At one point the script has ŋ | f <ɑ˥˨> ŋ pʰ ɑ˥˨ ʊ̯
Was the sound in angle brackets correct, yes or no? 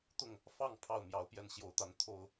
yes